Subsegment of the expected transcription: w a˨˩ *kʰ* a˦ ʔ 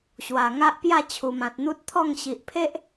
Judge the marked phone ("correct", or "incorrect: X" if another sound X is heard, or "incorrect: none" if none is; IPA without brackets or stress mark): incorrect: ŋ